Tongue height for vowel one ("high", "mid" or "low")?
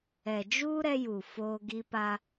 mid